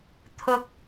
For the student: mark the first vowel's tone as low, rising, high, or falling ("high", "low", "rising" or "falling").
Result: rising